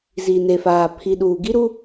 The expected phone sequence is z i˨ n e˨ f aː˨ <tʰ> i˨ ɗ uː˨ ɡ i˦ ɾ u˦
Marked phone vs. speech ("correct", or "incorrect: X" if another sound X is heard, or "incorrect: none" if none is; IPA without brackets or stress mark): incorrect: pʰ